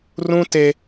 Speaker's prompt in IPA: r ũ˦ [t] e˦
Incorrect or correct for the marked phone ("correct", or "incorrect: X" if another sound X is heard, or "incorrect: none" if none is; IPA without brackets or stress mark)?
correct